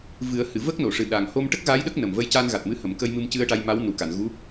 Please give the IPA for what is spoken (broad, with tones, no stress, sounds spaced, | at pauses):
v ɨ˨˩˦ ə̯ h ɨ˨˩˨ v ə˦˥ k̚ n o˨˩˨ ʂ ɨ˨˩ ɗ a˨˩ ŋ h o˧ m ʈ ə˦˥ k̚ ɣ a˧˥ j ɗ ə˦˥ k̚ n ə˨˩ m v ə˧ j c a˧ n ɣ a˨˩ t̚ m ɨ˧˥ h ə˨˩˨ m k ə˧ j m ɨ˧ m c ɨ˧ ə̯ ʈ a˧ j m a˧˥ w n u˨˩ k a˨˩˨ n ɣ u˧˥